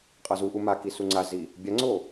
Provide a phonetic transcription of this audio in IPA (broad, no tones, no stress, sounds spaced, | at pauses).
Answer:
qʼ ʌ z u ʔ u m a k i s u ŋ͡ǀ a z i | bʲ a ŋ͡ǀ o